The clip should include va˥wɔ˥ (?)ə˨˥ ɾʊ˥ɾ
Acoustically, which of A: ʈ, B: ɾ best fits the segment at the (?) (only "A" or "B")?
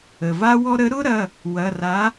B